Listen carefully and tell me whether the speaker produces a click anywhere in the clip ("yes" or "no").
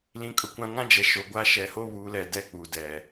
no